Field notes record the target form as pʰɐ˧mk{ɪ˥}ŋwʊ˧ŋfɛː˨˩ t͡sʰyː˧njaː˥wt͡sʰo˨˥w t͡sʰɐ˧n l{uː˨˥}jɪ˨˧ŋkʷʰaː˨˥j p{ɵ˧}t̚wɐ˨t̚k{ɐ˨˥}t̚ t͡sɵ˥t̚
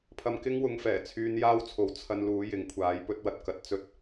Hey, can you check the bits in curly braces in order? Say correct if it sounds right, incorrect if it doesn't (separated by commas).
correct, correct, correct, correct